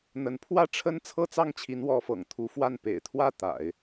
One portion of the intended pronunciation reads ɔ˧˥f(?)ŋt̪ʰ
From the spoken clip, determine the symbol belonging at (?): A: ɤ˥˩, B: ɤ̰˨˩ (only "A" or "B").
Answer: B